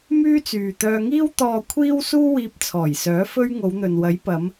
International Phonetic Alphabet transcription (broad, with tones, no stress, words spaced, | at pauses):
myː˥t͡syː˨ t̪œː˧ŋiː˥w t̪ɔː˨kʷʰiː˧w suː˥wiː˧p̚t͡sʰɔː˨˩jsœː˨˥ fɵ˧ɥ ŋo˨˧wn̪ɵ˨nwɐ˨˥j pɐ˨˧m